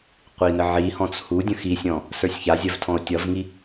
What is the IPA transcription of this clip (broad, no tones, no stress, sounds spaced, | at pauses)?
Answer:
qʷ i n ə ʕ i h ɔ̃ t͡s h u dʲ ə̃ x i sʲ ɔ̃ | s ə˞ sʲ ç a zʲ ɜ v tʰ ɔ̃ o̯ tʲ ʌ v ŋ i